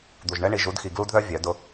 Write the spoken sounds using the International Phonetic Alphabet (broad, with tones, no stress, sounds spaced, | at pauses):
d̪ u˨ ʒ ɳ ɛ˦ ɳ i˨ ʒ u˨˦ d x i˨ ɡ l u˦ d ð œ˦ vʲ œ˨˦ d ʊ˦